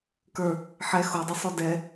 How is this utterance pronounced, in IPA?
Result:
k ə˞ | ħ ɛ x o dˤ ə sˤ o d ɛ

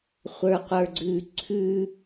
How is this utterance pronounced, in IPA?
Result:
χʷ ə˞ qʷ ə˞ ɡ͡ǀ ʉ ǀʰ ʉ

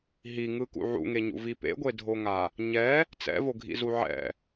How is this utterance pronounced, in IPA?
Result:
ɦ i ŋ ɯ k ṵ ʕ ṵ ŋ e ɲ ṵ v i p ḛ ɡʷ e dʱ o ŋ a | ɲ ɛ | t͡s ɛ̰ v o ɡʱ ḭ z u ʕ ɛ̰

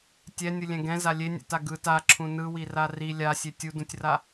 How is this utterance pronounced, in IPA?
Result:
tʲ ɛ nʲ ɯ lʲ ɛ̃ ɡ ɛ̃ z a lʲ e nʲ ɛ̰ t a ɡ ɯ t a ǁʰ ũ n ɯ w i r a r i lʲ a sʲ e tʲ u d ũ tʲ r a

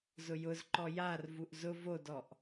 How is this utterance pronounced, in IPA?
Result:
z ʊ j ʊ z ǃ ɔ j a r v u ʔ z ʊ v o d ɔ ʔ

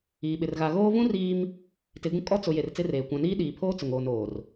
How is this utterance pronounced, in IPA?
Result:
iː˨ ɓ ɪ˨ r ɣ a˨ ɣ oː˦ v ũ˦ r iː˦ m | t ɪ˨˦ ɡ ũ˦ kʼ ɔ˦ t͡s ʊ˨ j e˨ r t͡s ɪ˦ r eː˨ kʷ ã˨ n iː˦ ɗ iː˨ pʰ oː˦ t͡s ʊ˨ ŋ oː˨ n oː˨ r

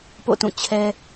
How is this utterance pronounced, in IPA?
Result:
p o̰˦˨ t ũ˦˨ t͡ɕʰ ɛ˦

